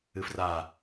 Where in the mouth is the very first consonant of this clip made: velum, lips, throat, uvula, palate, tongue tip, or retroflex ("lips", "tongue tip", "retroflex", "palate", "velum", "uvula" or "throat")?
lips